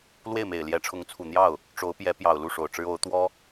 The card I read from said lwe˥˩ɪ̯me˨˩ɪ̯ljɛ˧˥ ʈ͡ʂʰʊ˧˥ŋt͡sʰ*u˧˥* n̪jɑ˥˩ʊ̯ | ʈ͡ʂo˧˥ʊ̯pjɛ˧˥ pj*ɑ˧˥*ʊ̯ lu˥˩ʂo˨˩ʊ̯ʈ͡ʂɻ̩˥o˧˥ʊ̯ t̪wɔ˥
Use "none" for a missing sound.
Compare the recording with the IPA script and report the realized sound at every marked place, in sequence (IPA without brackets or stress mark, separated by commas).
u˨˩, ɑ˨˩